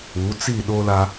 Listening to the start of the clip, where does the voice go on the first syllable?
rising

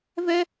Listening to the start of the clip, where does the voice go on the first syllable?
high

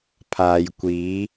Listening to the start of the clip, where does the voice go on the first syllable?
low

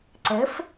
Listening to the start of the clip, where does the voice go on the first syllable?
rising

